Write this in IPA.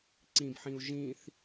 ǀ ĩ b ħ ĩ u̯ ʒ ĩ θ

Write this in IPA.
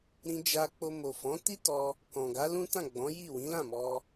ɾ ĩ˧ d͡ʒ a˧ k͡p o˧ m o˨ f ɔ̃˨˦ t i˦ t ɔ˧ | k ɔ̃˨ ɡ a˨˦ l ũ˦ t ã˦˨ ɡ͡b ɔ̃˨˦ j i˦˨ w ĩ˨˦ l ã˦˨ m ɔ˧

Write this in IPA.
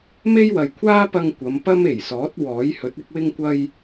m e˥ j w ɐ˨ j kʷʰ aː˥ p ɐ˧ ŋ kʷ ɐ˨˧ m p ɐ˥ m e˨˩ j s ɔː˨˥ t̚ w ɔː˨˥ j h ɵ˨˥ t̚ ɪ˥ k̚ w ɪ˥ ŋ kʷ ɐ˥ j

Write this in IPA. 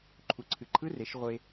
ǃʰ u˩ ǀʰ ɨ˩ ǃʰ ɯ˧˥ r e˩˧ ʃ ʁʷ e˧

